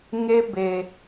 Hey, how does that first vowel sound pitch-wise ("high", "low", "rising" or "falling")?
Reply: high